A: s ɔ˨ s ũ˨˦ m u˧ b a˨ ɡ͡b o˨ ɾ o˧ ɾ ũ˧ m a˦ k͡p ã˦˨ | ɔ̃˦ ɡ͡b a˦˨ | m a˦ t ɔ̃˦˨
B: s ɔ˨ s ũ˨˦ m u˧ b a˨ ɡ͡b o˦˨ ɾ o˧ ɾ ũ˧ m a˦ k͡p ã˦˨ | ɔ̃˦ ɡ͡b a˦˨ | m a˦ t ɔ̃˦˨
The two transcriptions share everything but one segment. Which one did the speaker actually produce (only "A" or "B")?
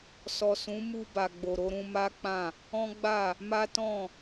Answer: A